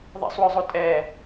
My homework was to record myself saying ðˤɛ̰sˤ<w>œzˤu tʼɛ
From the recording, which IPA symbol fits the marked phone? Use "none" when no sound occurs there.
w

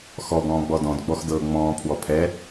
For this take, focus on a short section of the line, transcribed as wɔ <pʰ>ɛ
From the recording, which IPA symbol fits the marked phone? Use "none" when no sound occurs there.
pʰ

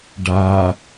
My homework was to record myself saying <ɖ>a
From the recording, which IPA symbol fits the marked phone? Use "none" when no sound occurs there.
ɖ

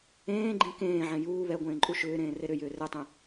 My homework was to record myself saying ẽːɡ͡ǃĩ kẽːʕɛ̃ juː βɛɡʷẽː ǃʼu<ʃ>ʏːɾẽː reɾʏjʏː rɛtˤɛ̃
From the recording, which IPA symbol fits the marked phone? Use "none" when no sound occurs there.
ʃ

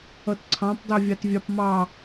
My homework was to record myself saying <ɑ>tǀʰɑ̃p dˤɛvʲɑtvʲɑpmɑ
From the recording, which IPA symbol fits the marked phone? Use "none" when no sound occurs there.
ʌ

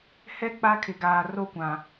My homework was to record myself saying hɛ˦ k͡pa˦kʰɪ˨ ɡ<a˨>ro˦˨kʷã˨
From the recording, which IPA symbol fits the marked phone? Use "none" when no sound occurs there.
aː˨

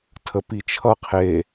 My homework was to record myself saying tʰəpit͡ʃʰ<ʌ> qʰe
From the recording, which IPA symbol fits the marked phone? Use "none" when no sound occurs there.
ʌ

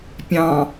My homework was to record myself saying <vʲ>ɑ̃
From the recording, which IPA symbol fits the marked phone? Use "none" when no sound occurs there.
pʲ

